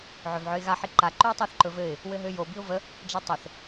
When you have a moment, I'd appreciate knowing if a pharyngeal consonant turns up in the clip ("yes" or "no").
yes